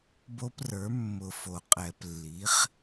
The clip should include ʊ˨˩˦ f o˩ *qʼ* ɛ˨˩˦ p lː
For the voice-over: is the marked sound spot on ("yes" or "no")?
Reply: yes